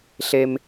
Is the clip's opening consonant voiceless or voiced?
voiceless